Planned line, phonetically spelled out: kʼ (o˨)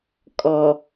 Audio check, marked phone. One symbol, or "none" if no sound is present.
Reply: ɔ˨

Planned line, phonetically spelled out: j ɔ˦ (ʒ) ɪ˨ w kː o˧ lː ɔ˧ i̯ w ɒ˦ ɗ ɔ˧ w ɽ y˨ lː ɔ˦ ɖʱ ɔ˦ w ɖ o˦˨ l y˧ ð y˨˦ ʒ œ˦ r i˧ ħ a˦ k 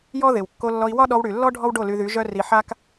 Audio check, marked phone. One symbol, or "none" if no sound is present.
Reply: ð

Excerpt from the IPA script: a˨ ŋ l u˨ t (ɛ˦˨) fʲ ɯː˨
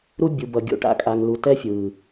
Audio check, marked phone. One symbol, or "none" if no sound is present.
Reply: ɛ˦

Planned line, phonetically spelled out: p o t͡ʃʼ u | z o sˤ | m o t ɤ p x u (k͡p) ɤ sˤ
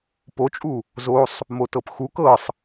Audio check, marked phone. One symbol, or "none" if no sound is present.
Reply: k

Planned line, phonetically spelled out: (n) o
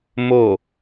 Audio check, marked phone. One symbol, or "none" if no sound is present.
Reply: m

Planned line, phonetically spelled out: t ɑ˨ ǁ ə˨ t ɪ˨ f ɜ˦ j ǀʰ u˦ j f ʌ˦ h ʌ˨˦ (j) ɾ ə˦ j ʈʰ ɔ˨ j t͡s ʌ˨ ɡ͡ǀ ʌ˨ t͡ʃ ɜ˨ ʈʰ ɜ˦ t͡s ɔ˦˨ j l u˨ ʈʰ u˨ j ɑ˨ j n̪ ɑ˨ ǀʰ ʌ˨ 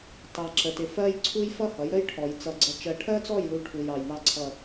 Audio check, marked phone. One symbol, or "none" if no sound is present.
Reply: j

